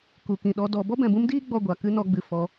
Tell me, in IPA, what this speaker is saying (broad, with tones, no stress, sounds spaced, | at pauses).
k u˨ k ĩ˨ ɗ ɔ˧ d ɔ˧ b ɔ˦ b ɛ̃˨ b ũ˦ m d iː˦ ɡ͡b ɔ˧ ɡʷ a˨ k ɨ˦ n ɔ˨˦ ɡ͡b ɨ˨ f ɔ˧